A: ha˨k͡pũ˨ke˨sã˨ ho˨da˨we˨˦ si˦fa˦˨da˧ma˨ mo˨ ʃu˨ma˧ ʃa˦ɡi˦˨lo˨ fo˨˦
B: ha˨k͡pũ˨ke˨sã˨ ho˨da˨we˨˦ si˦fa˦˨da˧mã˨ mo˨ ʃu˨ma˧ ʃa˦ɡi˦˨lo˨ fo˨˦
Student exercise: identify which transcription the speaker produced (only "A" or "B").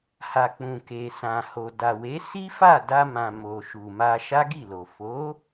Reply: B